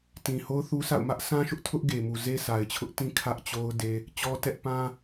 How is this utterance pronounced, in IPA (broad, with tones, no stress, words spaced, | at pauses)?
tĩ˨ho˦ʊ̯θu˦sa̰˦˨ʊ̯ mä˦ʔ sã˦ʃʊ˦ʔ tʰʊ˦ʔɡe˨mu˨ ze˦sa˨ɪ̯t͡ɕʰʊ˦ʔ tĩ˦kʰä˦ʔt͡ɕo˦ʊ̯ de˦ | t͡ɕɔ˦tɛ˦ʔ pã˦